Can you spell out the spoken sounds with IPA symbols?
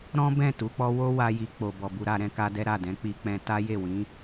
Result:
ɾ ɔ̃˦ b ɛ̃˦˨ t u˨˦ k͡p ɔ˦ w o˦ w a˦ j i˧ k͡p o˨ b ɔ˨ b u˧ ɾ a˧ ɾ ɛ̃˦ k a˦ d ɛ˦ ɾ a˦˨ d ɛ̃˨˦ k͡p i˧ k͡p ɛ̃˧ t a˦ j e˦˨ w ĩ˨˦

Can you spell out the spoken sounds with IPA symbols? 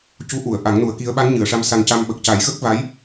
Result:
c u˧˥ ʔ u˨˩˨ ə̯ ʔ a˨˩˦ ŋ n u˨˩˦ ə̯ k i˧˥ ə̯ ɓ a˧˥ n ɲ ɨ˨˩˨ ə̯ ʂ a˧ m s a˧ n c a˧ m ɓ ə˨˩ k̚ c a˨˩˦ j ɣ ə˦˥ k̚ v a˧˥ j

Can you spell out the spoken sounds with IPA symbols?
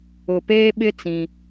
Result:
ʊ˨ p eː˦ ɓ ɪ˦ t͡s ĩ˦

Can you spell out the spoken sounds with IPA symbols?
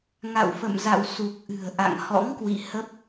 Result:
ŋ a̰˧˨ w f ə̰˧˨ m z a̰˧˨ w s u˨˩ k̚ ʔ ɨ̤˨˩ ə̯ ʔ a̰˧˨ ŋ h ɔ̰˧˥ ŋ k w ḭ˧˨ h ə˦˥ p̚

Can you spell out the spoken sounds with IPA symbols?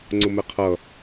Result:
ŋ͡ǀ ʊ m ɛ qʰ ʌ

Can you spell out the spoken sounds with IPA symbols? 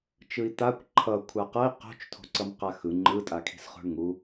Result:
t͡ʃ ɯ i̯ t̪ a kʷ ǃʰ ʌ kʷʰ a q ʌ i̯ q o̤ t͡ʃ tʰ o̤ ǀ ʌ m q a x ɯ ŋ͡ǃ ɯ tʼ a kʰ i̤ s χ o̤ ɳ ŋ u

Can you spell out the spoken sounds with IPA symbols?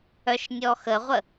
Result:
œ ʃ nʲ ɔ x ə ʁʷ ə

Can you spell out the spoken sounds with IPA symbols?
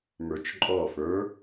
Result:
m ə˞ t͡ʃ ǃʼ ɔ f ə˞

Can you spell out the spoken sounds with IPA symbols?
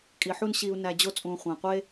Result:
kʼ i˨ ħ u˦ n ɕ i˨ u̯ n æ˨ d͡ʑ o˦ t͡sʼ ũː˨ χʷ æ̃˨ qʷ e˦

